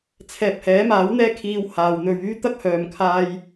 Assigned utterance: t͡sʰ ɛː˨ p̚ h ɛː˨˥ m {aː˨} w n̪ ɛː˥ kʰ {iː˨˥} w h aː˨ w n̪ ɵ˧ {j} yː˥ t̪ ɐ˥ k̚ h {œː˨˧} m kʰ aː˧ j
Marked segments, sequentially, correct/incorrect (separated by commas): incorrect, incorrect, incorrect, incorrect